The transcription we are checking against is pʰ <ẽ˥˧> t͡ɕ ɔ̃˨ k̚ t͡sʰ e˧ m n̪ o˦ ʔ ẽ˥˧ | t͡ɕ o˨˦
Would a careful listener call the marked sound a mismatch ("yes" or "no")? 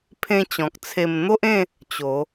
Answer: yes